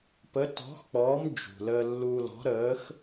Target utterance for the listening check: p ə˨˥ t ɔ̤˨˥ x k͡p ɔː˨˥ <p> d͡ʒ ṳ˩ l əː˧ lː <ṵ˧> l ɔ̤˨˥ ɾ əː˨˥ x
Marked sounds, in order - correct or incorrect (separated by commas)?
incorrect, incorrect